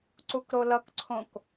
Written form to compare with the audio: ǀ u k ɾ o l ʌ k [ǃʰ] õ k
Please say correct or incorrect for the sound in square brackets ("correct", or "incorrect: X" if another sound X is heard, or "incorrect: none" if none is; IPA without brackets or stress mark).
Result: incorrect: ǀʰ